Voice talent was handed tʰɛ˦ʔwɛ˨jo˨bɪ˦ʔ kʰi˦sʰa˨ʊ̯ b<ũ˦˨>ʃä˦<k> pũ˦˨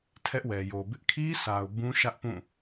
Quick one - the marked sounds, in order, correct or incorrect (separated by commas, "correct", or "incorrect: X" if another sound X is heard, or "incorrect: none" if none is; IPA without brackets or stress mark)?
incorrect: ũ˦, incorrect: ʔ